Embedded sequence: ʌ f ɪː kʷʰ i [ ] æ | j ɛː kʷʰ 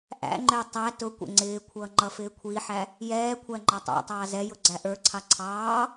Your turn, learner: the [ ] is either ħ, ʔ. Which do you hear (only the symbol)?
ħ